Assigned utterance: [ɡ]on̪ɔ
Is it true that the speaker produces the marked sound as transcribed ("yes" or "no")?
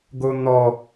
yes